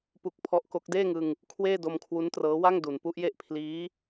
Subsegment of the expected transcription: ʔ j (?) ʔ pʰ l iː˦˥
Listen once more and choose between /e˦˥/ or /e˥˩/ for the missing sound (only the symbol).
e˥˩